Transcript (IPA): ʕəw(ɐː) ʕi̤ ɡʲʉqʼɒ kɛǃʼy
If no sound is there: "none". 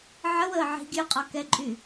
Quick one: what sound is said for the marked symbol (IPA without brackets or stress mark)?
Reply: əː